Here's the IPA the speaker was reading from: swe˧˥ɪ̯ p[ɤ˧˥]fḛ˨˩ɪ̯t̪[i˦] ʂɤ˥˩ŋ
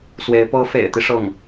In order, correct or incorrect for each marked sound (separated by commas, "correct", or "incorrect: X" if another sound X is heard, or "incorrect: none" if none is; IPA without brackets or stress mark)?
correct, correct